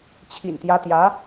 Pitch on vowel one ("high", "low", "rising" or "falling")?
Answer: low